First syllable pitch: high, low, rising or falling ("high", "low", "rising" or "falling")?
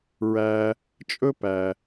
low